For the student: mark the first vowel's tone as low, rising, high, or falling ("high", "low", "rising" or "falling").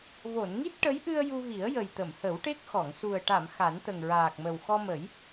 low